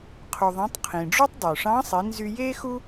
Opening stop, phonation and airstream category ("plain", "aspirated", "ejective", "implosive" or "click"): aspirated